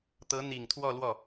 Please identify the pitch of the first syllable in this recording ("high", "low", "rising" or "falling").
rising